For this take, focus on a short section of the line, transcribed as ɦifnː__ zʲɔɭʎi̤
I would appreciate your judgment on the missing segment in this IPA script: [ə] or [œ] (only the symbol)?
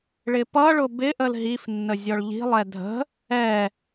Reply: ə